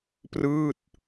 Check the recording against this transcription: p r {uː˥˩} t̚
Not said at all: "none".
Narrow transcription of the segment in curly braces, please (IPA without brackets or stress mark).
ɯː˥˩